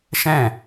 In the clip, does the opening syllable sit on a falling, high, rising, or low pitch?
falling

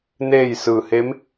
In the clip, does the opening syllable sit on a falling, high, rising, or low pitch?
falling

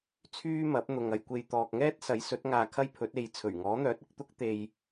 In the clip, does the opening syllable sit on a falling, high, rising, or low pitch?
high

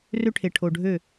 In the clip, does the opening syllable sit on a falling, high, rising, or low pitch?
high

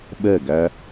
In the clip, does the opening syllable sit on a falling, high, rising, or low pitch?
falling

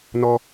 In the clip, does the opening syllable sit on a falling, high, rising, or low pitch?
high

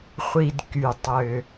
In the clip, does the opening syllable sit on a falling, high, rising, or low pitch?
low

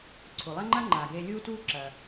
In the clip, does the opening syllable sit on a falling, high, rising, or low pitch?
low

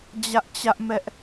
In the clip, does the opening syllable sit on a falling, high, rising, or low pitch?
high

